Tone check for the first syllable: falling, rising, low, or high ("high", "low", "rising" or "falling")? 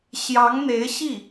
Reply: rising